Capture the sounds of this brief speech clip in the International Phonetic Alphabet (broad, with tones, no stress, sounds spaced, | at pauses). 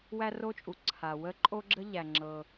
w æ˥ r o˥ t͡ʃʼ u˩ ǀʰ a˩ w ə˥ ǃʼ o˥ ɡ͡ǁ ə˥ ʎ æ˩ ŋ͡ǁ ɤ˩